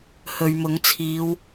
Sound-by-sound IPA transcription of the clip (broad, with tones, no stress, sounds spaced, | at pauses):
h ɵ˨ ɥ m ʊ˨˥ ŋ t͡sʰ iː˨˧ w